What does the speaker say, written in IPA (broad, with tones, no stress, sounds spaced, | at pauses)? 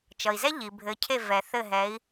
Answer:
t͡ʃ ʌ˩ i̯ z ɛ˥ ʎ i˩ bʱ ɘ˩˥ cʰ e˥˩ v ɛ˩ θ ɘ˥˩ ɦ ɛ˩˥ i̯